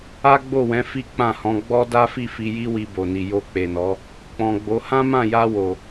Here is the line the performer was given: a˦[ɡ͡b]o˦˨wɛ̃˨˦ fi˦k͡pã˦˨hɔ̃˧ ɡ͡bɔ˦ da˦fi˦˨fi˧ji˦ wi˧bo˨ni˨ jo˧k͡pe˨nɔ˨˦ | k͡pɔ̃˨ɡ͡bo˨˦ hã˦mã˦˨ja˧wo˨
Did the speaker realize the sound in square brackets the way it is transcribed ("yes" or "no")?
yes